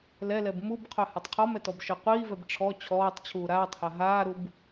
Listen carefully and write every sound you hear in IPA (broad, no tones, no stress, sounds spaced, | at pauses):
l ɛ l ɛ b m u b qʰ œ h a tˤ qʰ ɔ m ɛ t ɔ b ʃ œ qʷ iː v ɛ b ʈ͡ʂʰ ɔ t͡ɕʰ ɔː tˤ t͡ɕʰ uː ɾ aː tˤ h a ɦ aː ɾ u b